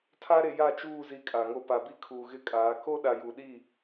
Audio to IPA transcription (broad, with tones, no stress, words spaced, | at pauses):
tʰa˦ɾe˨ja˦˨t͡ʃuː˦˨ zi˦kʼa˨ŋo˦ pa˨bi˦kʰuː˨ ɣɪ˦kʼaː˨˦ ko˦ɗa˨ju˨ɗi˦˨